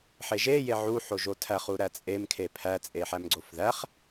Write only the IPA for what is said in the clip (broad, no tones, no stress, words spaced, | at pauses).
ħeʒe jeʕu ħoʒotʰæχ uɾæt͡sʼem kʰepʰæ t͡sʼeħæmɡ͡ǀofðæχ